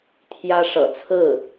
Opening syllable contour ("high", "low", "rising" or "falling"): high